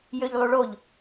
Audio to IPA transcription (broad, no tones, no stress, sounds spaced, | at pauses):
j ø ʎ lˠ u ɭ o ʎ